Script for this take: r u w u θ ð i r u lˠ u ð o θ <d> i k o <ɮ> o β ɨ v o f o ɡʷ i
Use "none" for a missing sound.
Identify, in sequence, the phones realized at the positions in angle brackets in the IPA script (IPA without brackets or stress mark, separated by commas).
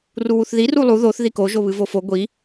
ð, ʒ